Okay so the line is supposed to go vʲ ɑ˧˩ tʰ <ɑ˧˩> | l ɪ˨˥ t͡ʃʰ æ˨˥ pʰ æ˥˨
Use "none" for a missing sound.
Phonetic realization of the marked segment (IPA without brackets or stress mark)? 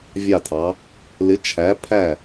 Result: ɑ˩˧